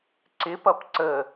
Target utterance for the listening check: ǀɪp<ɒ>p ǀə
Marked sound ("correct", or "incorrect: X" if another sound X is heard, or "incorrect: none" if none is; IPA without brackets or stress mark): incorrect: ʌ